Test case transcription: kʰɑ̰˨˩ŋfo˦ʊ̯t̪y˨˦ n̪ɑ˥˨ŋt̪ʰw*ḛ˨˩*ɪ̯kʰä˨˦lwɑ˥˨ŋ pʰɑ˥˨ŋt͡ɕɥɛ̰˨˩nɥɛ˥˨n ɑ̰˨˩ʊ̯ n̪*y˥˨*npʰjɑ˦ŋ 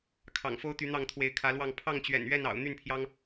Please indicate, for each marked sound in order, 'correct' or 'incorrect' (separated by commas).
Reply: incorrect, correct